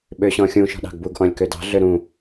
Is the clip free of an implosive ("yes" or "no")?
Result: no